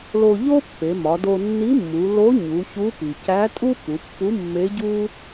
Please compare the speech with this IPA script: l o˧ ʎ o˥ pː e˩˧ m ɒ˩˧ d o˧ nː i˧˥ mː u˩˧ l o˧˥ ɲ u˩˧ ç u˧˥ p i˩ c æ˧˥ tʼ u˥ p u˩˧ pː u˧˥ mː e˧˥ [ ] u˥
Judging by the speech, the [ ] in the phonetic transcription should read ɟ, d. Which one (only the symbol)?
ɟ